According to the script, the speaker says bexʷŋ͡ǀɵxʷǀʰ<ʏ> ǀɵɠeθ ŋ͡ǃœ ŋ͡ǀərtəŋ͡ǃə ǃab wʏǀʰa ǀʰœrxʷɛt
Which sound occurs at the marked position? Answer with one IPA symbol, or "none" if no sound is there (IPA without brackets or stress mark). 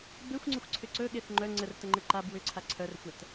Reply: ʏ